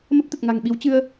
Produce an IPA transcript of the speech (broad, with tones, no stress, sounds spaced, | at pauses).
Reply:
m ə˦˥ p̚ t̪ ə˨˩ t̚ ŋ a̤˨˩ ŋ ɓ i˨˦ w t͡ɕ ɨ˧ ə̯